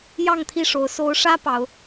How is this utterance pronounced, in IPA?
j ɑ˥˨ ŋ t̪ʰ i˥˨ ʂ o˨˦ ʊ̯ s o˨˦ ʊ̯ ʂ ä˦ p ɑ˨˦ ʊ̯

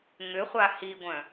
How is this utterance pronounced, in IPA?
ŋ ʏ χʷ a h i ɡʷ œ̃

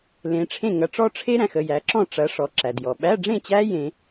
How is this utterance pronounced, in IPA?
l ẽ˨˦ ʈ͡ʂʰ ẽ˥˨ ŋ ɐ˨˦ ʈ͡ʂ ɔ˦˥ ʈ͡ʂʰ e˦˥ ɾ æ̃˨ x ə˥˨ j æ˨˦ ǁ ɔ̃˥˨ ʈ͡ʂ ɐ˨˦ ʂ ɔ˨ ǁ æ˨ d j ɔ˨ ɓ æ˧˥˧ ɖ͡ʐ ẽ˥˨ t͡ɕ æ˦˥ j ẽ˦˥

